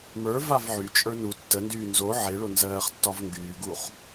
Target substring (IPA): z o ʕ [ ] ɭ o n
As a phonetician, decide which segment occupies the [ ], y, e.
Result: e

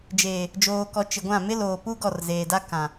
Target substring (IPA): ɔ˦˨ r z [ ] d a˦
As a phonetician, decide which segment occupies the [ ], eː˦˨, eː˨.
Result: eː˨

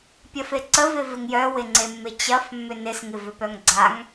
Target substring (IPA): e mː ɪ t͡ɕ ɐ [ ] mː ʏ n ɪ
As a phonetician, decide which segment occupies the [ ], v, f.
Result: f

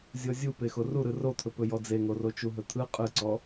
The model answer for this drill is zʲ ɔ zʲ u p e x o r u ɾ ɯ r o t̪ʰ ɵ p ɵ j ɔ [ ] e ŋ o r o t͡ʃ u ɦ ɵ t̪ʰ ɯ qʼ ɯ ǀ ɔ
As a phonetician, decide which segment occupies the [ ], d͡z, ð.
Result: d͡z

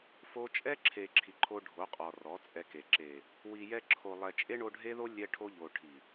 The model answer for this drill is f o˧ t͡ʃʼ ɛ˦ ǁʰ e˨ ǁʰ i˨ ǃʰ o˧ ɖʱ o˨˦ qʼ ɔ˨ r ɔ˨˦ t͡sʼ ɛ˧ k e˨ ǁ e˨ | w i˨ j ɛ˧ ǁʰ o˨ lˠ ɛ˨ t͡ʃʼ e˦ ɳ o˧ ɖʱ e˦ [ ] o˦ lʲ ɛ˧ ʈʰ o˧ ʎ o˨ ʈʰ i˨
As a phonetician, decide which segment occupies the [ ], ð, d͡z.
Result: ð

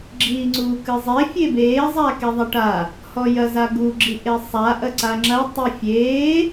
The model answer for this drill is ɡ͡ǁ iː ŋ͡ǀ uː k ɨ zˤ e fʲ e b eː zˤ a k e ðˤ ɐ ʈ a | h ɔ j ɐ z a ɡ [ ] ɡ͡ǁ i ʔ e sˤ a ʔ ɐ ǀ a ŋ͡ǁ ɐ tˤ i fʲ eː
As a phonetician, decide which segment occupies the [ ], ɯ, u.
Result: u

